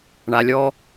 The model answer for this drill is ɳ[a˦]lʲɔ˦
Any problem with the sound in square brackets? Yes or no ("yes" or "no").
yes